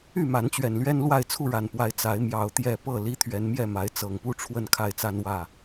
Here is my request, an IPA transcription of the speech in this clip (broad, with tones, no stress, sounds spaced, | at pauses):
y˥˨ m a˨˦ n t͡ɕ ɥ ɛ˨˩ n l ɥ ɛ˦ n l w a˥˨ ɪ̯ t͡sʰ u˥˨ ɻ a˨˩ n p w a˨˦ ɪ̯ t͡s a˨˦ ɪ̯ m j ɑ˨˦ ʊ̯ t̪ j ɛ˨˩ p ɤ˥˨ l i˦ t̪ʰ ɥ ɛ˨˦ n m j ɛ˥˨ m a˨˦ ɪ̯ t͡s ɤ˨˩ ŋ p u˥˨ ʈ͡ʂʰ w ə˥˨ n kʰ a˥˨ ɪ̯ t͡s a˦ n w ä˥˨